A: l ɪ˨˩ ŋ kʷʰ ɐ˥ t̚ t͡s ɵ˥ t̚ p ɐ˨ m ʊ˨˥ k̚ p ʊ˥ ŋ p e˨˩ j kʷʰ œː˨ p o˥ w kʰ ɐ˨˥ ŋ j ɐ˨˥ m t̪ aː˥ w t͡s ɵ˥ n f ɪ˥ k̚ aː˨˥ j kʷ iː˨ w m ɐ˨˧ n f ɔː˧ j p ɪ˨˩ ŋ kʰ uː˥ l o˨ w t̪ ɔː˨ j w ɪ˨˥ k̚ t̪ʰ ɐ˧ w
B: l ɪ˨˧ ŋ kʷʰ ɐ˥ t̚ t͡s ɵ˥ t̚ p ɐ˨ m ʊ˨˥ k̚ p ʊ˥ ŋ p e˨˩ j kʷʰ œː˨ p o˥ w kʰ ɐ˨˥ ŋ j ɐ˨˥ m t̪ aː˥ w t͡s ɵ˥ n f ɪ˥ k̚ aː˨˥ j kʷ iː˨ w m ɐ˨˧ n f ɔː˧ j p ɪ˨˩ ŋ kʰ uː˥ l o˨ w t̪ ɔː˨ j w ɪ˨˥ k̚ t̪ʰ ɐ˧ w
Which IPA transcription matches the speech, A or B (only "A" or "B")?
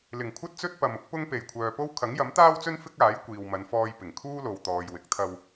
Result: A